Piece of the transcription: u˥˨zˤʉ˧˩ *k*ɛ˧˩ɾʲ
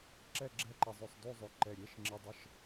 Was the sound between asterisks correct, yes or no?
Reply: no